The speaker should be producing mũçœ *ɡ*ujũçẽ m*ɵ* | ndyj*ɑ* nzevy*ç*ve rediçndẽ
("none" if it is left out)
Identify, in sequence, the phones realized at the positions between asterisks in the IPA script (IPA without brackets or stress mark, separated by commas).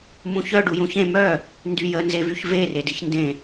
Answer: ɖ, œ, ə, ç